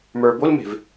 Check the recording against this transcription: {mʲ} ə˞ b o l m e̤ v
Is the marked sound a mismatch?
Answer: yes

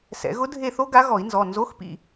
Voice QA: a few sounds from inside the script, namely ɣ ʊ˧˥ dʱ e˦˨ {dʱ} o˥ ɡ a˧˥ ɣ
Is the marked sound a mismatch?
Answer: yes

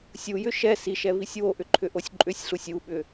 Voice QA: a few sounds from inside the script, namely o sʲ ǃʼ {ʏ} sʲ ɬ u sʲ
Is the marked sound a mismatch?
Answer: no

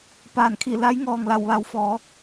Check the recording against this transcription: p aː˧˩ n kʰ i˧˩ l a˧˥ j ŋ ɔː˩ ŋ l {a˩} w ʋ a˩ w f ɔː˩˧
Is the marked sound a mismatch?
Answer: yes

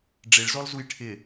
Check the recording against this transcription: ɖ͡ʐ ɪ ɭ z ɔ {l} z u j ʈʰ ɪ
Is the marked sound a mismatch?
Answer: no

